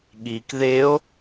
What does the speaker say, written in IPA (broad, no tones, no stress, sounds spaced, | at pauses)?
ɠ i k ð e o̯